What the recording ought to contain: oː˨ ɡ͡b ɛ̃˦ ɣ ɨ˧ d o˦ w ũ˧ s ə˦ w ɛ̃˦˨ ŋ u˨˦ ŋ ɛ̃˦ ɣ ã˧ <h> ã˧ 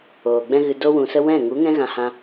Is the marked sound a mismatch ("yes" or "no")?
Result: no